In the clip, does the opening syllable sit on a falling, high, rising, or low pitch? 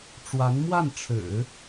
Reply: rising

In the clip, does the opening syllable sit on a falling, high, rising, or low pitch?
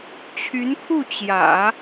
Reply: rising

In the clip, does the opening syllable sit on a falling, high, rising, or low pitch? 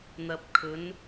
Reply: low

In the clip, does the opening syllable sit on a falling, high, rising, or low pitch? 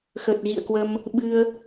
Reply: low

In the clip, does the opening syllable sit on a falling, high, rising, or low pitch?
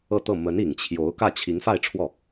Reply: falling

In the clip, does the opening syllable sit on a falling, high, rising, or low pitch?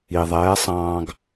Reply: low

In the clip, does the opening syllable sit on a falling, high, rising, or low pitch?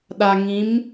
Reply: low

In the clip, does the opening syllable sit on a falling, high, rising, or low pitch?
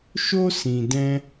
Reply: high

